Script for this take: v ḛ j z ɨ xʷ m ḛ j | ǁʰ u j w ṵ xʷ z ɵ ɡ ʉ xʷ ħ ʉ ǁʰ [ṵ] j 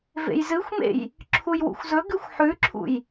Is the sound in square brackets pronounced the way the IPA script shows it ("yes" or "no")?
yes